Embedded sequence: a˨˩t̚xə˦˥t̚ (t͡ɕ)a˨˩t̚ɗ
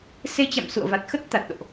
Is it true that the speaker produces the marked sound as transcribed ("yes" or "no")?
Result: no